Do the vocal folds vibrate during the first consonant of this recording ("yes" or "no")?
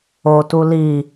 no